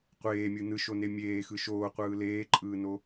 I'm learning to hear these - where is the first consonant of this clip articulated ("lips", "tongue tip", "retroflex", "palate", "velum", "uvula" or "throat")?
uvula